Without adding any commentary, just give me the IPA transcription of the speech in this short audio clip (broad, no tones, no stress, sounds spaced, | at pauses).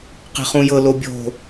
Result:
q e̤ χ ũ j ɤ l o bʲ o̤